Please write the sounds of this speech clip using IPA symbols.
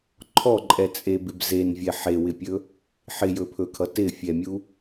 ǃʰ ɔ ǃʼ ɛ t͡sʼ e b ɪ b z e n vʲ ɛ ħ e w ɪ pʲ ɵ | ħ ɪ j ɵ pʰ ɵ kʰ ʌ t ɪ fʲ ɛ mʲ u

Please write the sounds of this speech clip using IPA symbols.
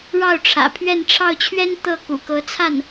ɻ ɑ˥˩ ʊ̯ ʈ͡ʂʰ ä̰˨˩ pʰ ɥ ɛ˥˧ n ʈ͡ʂʰ ɑ˥˩ ʊ̯ t͡ɕʰ ɥ ɛ˥ n t̪ ɤ˥˩ k ṵ˨˩ k ɤ˧˥ t͡sʰ a˥˩ n

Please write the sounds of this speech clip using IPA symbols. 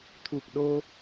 t̪ʰ u˨˩ k̚ ɗ o˧

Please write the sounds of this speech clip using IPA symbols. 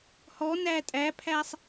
h ɔ n æ tʼ æ pʰ æ sˤ

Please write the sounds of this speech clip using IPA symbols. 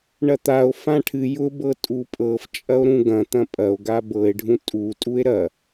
ɳ ɐ t̪ a o̯ f ã ʈʰ ɨ j ʊ b ɤ tʼ u pʼ ɤ f t͡ʃʼ ɐ o̯ ɾ ũ ɡ ɐ̃ t̪ ɐ̃ pʼ ɐ o̯ ɡ a b ɤ e̯ ɖʱ ũ tʼ u tʼ u e̯ ɾ ɐ

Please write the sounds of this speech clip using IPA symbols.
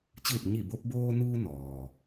t͡ɕ ɯː˧˩ p̚ ɲ i˧˩ b o˧ p̚ b oː˧ n uː˧ n ɔː˩

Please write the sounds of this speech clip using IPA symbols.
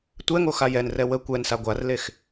tʷ ɛ ŋ o x a j ɛ n r ɛ w ə kʷ ɛ n s a ɡʷ a r l e x

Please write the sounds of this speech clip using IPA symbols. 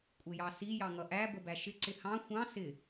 kʷʼ ɪ j ɑ s i j ɑ ŋ ʌ ʔ æ b ə b æ ʃ ɪ ǀ ɪ h ɑ̃ xʷ ɑ̃ s ɪ

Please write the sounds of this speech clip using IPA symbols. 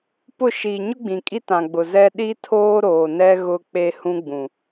p ʊ˦˨ ʃ iː˨ ɲ ʊ˦ ɡ͡b ĩ˨ kʼ i˦ t ã˨ ɡ͡b ʊ˨ z ɛ˦ ɗ i˦ tʰ oː˦ ɾ oː˨ n ɛ˦ ɣ ʊ˦ k͡p e˦ h ũ˦ ɡ͡b ũ˨

